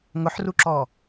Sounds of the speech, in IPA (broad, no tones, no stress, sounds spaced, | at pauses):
ŋ ʊ ħ r u ǁ ɔ